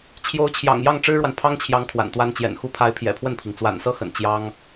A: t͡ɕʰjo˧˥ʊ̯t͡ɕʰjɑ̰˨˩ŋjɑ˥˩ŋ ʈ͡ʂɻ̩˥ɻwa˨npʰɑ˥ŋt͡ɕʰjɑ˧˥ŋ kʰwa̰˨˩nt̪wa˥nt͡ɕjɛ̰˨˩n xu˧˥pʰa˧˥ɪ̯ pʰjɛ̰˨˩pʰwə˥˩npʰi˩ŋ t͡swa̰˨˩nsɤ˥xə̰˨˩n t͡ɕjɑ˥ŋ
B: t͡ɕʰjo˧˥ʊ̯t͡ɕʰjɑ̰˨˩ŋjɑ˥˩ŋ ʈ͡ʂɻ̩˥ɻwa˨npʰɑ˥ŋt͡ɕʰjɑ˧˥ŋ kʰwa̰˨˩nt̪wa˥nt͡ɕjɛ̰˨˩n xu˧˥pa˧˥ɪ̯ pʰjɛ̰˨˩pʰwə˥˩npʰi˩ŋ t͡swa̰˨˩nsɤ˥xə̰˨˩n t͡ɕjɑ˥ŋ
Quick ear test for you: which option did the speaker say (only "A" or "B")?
A